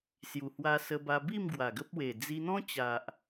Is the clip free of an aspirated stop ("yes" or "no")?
yes